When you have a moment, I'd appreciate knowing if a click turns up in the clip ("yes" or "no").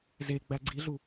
yes